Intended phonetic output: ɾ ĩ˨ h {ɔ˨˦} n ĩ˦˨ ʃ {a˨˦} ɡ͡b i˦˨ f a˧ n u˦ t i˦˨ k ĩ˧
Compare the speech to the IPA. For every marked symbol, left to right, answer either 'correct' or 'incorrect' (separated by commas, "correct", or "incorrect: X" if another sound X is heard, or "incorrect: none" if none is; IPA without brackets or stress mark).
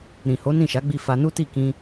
incorrect: o˨˦, correct